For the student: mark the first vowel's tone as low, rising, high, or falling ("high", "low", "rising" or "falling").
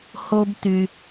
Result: high